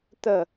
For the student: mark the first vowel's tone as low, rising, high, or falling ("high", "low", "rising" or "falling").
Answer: falling